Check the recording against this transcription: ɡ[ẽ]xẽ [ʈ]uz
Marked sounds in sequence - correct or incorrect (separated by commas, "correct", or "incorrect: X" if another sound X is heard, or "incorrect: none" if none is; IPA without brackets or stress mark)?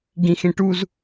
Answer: incorrect: ĩ, correct